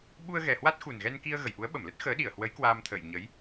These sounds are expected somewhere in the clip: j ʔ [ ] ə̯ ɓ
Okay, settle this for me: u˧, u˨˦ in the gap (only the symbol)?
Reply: u˨˦